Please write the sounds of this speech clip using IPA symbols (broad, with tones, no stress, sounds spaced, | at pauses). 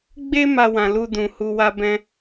ɡ͡b e˦ m a˦ w ã˧ l u˧ d ũ˨ h u˧ w a˦ b ɛ̃˦